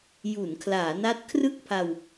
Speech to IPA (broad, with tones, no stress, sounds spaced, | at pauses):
j u˩˦ n kʰ l aː˩˦ n a˦˥ t̚ kʰ r ɯ˥˩ k̚ pʰ a˧ w